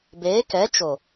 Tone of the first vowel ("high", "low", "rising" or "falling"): rising